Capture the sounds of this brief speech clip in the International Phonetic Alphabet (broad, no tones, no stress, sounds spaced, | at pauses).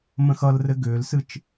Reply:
m ə̃ x ʌ l r ɘ ɡ ʏː l s ɨ t͡ʃ